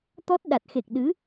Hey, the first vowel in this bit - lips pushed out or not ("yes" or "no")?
yes